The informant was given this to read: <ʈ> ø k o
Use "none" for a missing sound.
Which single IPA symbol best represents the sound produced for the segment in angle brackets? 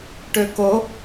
ʈ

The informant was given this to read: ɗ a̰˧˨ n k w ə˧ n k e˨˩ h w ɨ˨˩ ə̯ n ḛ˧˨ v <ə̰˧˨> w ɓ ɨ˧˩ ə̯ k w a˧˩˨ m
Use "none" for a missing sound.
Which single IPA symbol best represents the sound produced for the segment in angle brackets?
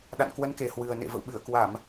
ə̰˧˨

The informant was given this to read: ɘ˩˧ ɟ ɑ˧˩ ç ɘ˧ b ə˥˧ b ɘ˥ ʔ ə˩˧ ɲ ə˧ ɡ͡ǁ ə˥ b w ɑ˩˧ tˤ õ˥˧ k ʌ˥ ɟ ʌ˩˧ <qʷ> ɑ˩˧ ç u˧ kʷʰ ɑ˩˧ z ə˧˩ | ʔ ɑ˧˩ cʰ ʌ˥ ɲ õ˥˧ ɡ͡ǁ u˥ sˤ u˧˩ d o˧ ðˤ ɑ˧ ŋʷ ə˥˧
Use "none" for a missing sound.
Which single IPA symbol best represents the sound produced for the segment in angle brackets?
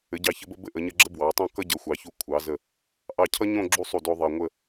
xʷ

